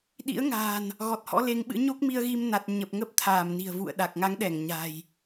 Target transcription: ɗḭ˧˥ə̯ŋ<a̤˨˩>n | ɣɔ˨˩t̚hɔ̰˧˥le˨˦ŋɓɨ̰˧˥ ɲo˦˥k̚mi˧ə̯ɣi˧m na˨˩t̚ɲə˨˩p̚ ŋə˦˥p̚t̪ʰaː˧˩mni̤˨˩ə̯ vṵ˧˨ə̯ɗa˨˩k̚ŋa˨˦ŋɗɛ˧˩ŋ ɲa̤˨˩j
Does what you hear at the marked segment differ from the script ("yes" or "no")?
yes